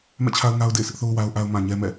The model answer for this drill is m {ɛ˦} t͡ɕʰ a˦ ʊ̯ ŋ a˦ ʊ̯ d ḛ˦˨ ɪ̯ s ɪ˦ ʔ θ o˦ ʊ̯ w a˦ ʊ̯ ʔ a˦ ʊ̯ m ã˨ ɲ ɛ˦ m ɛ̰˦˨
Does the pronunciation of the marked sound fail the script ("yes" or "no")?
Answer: yes